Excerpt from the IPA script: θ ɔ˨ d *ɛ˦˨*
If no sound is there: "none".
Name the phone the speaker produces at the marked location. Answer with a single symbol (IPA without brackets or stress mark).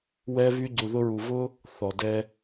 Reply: ɛ˧